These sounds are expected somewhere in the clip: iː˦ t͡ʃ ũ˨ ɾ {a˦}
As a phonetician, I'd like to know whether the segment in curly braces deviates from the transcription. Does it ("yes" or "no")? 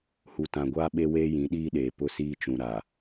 yes